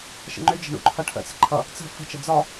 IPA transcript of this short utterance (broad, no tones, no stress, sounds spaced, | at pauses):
ʃ ə̰ ŋ͡ǃ ʏ d͡ʒ ə̤ ɳ ṵ ǃʰ ʌ ʈʰ ə̰ t͡s ə̤ ǃʰ ʌ | t͡s ə̤ f ə̤ t͡ʃ ə d͡z ɒ